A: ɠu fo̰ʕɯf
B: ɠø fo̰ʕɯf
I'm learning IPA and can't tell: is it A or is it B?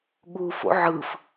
A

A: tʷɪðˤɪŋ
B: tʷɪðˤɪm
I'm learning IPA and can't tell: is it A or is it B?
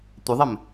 B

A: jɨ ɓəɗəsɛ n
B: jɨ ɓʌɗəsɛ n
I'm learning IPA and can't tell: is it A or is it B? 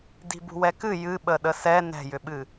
A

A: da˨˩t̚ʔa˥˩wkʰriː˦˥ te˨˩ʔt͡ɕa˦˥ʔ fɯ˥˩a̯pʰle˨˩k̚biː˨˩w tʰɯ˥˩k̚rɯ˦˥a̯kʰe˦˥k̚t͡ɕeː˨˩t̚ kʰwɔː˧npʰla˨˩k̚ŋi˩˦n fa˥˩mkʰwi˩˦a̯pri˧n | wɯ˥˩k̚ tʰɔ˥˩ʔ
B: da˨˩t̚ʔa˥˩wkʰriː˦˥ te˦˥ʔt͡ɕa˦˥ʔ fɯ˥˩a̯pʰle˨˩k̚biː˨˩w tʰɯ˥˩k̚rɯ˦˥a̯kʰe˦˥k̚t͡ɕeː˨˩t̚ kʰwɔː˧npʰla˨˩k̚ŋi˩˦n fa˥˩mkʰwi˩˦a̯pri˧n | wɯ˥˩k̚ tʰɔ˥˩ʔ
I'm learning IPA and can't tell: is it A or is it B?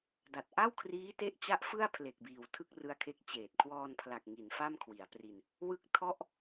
B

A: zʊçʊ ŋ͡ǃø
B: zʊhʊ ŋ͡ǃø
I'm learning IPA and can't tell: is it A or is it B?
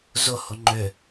B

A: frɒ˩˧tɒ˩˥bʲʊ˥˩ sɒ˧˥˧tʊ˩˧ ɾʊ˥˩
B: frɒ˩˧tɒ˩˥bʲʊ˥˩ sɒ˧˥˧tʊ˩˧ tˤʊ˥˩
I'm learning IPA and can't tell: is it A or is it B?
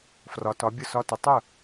B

